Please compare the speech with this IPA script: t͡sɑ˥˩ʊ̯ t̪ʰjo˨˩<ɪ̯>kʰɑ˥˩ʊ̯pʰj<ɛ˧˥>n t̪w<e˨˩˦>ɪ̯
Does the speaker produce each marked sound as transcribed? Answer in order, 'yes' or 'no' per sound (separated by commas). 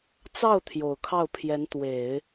no, yes, yes